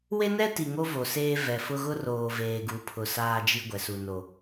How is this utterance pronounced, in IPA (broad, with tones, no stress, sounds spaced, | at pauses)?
w e˦ n ɛ˦ t i˨ ŋ o˦ v o˨ s eː˦ v ɛ˨ f ʊ˦ ɣ ʊ˦ r oː˨ v eː˨ ɡ u˨˦ pʰ ʊ˨ s aː˦ d͡ʒ i˦ ɡʷ ɛ˨ s u˨ n o˨